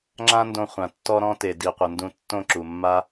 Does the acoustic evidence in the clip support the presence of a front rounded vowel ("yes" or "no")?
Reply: no